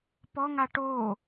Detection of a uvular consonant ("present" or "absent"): absent